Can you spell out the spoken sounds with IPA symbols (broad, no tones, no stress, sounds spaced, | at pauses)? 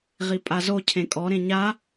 ʁ i pʼ a z o cʰ ẽ kʼ ɔ ɾ ẽ ɲ a